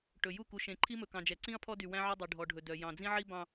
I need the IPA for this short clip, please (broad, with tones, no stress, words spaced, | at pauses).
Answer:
ʈɵ˨ju˦˨ ku˨ʃẽ˨ǃʰi˦mɵ˨ kɑ̃˨d͡ʒɛ˨ ǀĩ˦ɐ̯pʰɔ˦dy˨ wæ̃˦ʕœ˦dˤi˨ ɖʱɔ˨ɖʱɵ˨dœ˨ jɑ̃˨d͡zĩ˦ʕi˦ bɑ̃˦